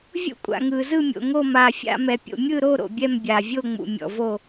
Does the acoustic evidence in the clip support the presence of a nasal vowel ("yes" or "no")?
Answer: no